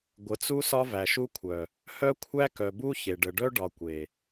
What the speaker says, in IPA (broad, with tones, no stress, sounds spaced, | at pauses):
ɡʷ ə˨ t͡s u˦ s ɒ˦ v æ˨ ʃ u˦ kʷʰ œ˨ | h œ˦ kʷʰ æ˦ k œ˨ b u˦ ç e˨ ɖ ə˨ ɖ œ˦ ɖ ɒ˨ kʷ e˨